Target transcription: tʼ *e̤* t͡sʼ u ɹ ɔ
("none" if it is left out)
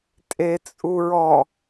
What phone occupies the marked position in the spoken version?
e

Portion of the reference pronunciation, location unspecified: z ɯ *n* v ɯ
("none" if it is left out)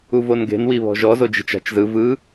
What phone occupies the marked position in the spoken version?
none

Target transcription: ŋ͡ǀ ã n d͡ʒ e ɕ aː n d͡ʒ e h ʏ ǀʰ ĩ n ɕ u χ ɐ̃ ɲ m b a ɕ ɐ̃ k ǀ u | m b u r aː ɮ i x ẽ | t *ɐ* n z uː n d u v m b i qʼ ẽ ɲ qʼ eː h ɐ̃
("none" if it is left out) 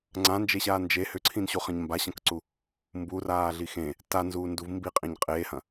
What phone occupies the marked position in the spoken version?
a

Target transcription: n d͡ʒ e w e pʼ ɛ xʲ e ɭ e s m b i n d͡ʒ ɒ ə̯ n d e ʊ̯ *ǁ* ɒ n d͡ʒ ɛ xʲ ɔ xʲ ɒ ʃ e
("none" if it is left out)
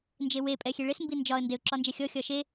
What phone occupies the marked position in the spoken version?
ǁ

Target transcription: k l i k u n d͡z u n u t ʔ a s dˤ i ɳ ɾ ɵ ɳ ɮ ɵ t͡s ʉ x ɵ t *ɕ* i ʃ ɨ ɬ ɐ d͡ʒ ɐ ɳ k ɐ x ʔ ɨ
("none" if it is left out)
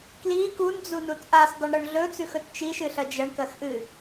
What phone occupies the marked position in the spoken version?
t͡ʃ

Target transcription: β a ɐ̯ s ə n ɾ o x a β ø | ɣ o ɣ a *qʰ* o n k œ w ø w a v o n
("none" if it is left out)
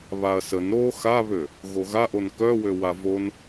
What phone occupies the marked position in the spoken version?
ʔ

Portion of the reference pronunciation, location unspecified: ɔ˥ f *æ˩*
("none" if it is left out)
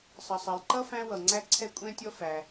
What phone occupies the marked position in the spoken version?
æ˩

